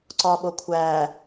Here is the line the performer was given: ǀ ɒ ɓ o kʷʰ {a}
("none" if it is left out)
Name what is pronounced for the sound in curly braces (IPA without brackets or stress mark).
æ